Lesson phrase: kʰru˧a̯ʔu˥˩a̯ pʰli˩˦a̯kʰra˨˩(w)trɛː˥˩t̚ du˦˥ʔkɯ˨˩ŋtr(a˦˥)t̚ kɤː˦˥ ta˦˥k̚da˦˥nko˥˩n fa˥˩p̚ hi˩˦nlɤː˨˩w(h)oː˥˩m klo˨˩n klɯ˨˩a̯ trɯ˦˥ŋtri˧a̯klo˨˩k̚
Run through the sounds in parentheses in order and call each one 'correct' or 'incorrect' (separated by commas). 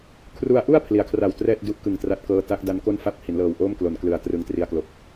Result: correct, correct, incorrect